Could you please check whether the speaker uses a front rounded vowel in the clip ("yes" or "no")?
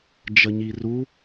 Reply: no